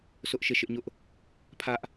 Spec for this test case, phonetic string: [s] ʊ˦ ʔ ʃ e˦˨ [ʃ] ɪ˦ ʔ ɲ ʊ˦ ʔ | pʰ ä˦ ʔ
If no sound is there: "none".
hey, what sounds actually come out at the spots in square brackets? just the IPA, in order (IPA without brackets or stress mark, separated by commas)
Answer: s, ʃ